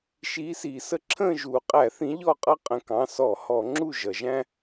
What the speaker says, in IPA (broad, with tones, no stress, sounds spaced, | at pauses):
ʃ iː˨˦ s iː˩ s ə˦ ǁʰ ə̃ː˦˨ ʒ uː˩ qʼ æ˧˩˧ θ ĩ˨˦ ʎ ɔ˦˨ qʼ ʌ˦ qʼ ə̃˧˩˧ k ɑ̃˩˧˩ s ɔ˧˩˧ h ɔ˧˩˧ ŋ͡ǁ u˦˨ ʒ ʌ˩ ʒ æ̃˦